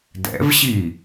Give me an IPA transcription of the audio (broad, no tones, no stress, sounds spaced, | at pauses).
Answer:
d ɛ̰ v ɕ i